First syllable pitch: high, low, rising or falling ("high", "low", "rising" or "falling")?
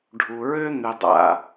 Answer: low